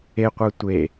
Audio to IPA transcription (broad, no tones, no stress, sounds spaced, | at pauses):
e qʷ əː tʷ e